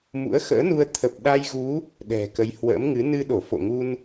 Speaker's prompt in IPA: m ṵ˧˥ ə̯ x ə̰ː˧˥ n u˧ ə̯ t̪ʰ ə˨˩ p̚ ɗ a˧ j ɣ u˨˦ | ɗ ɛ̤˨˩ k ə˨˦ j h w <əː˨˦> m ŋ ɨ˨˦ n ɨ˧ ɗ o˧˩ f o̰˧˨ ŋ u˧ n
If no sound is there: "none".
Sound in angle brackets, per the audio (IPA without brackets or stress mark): ə̰ː˧˥